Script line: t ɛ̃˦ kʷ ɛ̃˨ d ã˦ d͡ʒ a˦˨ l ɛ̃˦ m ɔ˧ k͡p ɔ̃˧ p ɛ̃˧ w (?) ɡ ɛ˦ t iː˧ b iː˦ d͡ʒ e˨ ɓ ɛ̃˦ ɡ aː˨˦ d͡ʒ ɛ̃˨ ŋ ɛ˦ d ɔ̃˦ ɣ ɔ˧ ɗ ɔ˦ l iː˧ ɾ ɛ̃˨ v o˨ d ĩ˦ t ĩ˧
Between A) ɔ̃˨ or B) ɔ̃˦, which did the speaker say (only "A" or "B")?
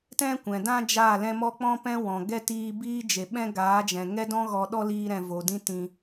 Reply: A